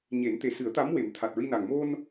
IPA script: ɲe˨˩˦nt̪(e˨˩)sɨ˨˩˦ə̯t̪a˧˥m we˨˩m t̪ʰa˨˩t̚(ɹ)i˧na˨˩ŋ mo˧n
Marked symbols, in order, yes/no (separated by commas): yes, yes